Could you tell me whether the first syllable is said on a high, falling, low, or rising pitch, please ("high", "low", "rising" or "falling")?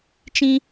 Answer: high